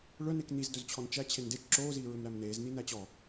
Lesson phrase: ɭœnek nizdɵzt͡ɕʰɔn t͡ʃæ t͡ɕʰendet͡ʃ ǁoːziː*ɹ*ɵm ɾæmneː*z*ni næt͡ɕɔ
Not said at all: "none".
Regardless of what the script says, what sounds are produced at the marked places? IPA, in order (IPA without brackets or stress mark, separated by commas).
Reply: ɹ, z